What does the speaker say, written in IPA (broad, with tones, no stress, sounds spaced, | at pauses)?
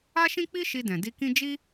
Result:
a˦ ʃ ĩ˦ k͡p i˦ ʃ i˧ d ɛ̃˨ d i˧ k ĩ˦ d͡ʒ i˦